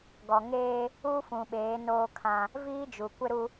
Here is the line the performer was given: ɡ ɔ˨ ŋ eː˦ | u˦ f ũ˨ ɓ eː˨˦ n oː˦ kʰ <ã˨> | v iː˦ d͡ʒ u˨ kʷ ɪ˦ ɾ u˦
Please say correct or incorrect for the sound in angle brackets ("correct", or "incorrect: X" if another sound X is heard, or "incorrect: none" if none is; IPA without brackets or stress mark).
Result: incorrect: ã˦